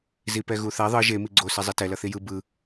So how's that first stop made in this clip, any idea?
plain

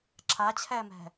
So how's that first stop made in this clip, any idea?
click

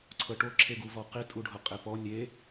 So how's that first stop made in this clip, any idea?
click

